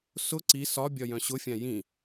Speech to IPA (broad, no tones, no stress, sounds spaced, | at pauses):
s ʊ ǀ i s ɒ bʲ ɒ j œ̃ ɕ ʊ fʲ ã j ĩ